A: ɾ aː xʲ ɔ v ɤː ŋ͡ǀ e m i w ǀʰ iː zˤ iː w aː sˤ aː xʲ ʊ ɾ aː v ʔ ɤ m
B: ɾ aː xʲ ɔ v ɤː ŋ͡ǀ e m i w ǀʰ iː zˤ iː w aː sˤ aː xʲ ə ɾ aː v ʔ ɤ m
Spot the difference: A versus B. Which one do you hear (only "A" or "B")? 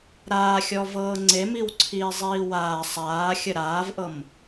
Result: B